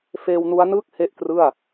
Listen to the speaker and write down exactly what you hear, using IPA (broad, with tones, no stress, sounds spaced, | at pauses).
f eː˧ w n u˦˥ a̯ n ɯː˥˩ k̚ h e˥˩ ʔ k r ɯ˥˩ a̯